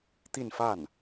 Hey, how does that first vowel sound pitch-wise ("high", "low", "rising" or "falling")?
falling